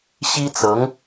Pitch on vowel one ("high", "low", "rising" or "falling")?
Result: high